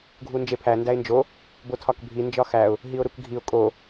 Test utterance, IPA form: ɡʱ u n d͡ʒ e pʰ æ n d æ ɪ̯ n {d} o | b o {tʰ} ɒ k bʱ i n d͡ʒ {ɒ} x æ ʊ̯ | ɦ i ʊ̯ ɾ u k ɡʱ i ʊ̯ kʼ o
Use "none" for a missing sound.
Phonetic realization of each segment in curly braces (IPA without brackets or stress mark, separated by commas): d͡ʒ, tʰ, ɒ